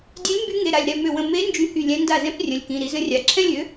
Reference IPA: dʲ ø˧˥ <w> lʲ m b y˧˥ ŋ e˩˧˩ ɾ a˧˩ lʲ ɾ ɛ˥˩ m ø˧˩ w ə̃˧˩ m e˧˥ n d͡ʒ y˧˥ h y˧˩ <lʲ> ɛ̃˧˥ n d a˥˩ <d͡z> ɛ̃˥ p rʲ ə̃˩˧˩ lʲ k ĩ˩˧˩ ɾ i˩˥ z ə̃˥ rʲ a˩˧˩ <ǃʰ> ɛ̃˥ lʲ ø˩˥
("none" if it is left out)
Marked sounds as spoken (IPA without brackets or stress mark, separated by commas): none, lʲ, z, ǁʰ